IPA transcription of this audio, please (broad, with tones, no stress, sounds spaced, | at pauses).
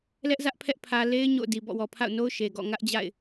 l ɛ˦ ʔ z ä˦ ʔ pʰ ɛ˦ ʔ pʰ ä˨ l e˦ ɪ̯ ɲ o̰˦˨ ʊ̯ d i˨ b ɔ̰˦˨ w ɔ˨ pʰ a̰˦˨ ʊ̯ n o˦ ʊ̯ ʃ e˨ ɡ ɔ̰˦˨ ŋ ä˦ ʔ d͡ʑ a̰˦˨ ɪ̯